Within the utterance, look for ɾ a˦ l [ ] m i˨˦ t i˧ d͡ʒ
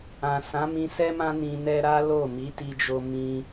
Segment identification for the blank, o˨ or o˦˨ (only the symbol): o˦˨